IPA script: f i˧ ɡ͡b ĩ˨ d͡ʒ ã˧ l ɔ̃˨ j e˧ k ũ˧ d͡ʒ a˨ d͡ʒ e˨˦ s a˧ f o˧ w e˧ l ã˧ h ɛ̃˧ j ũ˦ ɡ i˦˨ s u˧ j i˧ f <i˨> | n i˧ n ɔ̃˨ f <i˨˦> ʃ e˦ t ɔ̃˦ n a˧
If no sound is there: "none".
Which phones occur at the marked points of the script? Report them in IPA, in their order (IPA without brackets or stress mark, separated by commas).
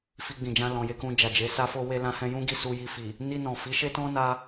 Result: i˨, i˨˦